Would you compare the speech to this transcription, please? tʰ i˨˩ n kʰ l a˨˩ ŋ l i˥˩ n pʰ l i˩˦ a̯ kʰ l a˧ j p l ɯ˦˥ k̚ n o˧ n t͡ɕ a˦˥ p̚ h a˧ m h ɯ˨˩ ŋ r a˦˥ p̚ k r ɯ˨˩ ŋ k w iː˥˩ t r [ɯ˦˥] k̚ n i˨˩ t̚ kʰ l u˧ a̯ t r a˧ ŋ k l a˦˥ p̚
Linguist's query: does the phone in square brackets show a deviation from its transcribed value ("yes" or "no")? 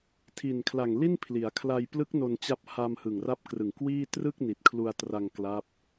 yes